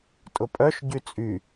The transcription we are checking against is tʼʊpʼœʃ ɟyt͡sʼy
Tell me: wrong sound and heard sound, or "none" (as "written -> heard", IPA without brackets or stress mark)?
none